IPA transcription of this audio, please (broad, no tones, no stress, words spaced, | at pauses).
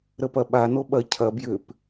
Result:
ɾəpɐɓa noɓɐ cʰɐ bjʏp